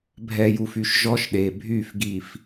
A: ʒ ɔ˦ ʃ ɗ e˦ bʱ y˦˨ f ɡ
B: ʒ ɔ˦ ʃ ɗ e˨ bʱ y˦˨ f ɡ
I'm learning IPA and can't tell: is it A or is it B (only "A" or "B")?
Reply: B